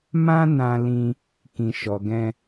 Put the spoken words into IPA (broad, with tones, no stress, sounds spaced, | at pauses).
m ã˦ n ã˧ l ĩ˧ | k ĩ˨ ʃ ɔ˨ ɡ ɛ̃˧